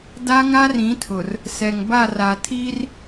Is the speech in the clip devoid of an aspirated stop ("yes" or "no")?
no